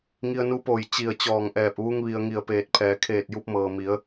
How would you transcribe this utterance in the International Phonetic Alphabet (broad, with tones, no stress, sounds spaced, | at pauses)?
ŋ i˧ ə̯ n u˧˥ p oː˧˩ j t͡ɕ i˧˩ ə̯ t͡ɕ ɔː˧˩ ŋ ʔ ɛː˧˩ p̚ ʋ u˧ ŋ ʋ i˩ ə̯ ŋ i˧˩ ə̯ p eː˧˩ t̚ pʰ ɛː˩˧ kʰ eː˧˩ t̚ j u˧ p̚ m ɤː˩ m i˩˧ ə̯